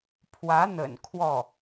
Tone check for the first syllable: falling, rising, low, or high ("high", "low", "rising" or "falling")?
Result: rising